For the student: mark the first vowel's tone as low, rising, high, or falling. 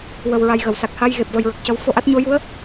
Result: low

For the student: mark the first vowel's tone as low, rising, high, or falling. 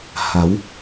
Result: rising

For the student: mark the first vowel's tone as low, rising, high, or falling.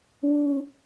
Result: high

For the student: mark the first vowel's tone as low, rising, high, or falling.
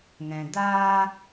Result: low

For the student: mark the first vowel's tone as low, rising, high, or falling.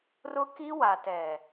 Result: high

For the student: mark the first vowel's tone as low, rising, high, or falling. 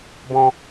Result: high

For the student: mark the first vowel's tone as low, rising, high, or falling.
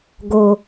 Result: low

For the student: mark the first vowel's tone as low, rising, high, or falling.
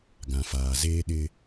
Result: low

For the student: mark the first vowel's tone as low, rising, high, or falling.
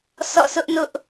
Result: falling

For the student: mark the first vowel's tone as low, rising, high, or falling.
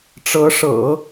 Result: rising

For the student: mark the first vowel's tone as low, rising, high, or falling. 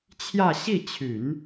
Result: falling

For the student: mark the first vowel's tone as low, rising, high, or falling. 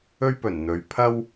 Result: high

